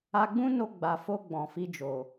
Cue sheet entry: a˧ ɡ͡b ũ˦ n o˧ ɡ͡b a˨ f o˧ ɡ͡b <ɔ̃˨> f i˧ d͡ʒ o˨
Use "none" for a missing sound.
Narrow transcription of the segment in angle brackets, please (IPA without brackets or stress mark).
ɔ̃˨